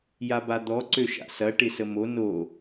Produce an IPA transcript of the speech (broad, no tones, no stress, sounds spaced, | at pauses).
j a b a d̪ ɔ ǀ ø ʃ a̰ s ɐ ʈ ɪ s ə m o n o